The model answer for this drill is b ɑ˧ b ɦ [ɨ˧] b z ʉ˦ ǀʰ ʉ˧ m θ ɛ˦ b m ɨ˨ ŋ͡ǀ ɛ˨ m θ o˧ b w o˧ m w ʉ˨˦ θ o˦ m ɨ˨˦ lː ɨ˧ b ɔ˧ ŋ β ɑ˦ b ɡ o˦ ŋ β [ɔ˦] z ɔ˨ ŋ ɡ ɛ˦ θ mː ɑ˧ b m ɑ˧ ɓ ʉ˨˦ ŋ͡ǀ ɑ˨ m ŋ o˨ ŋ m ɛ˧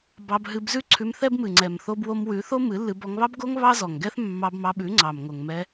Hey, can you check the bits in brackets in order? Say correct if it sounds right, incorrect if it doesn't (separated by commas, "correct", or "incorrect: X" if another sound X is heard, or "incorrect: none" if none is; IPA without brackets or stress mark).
correct, incorrect: ɑ˦